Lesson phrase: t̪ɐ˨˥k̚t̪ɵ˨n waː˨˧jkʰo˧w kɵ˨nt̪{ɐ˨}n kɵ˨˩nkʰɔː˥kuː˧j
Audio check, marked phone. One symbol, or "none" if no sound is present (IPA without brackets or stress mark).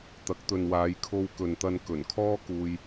ɐ˧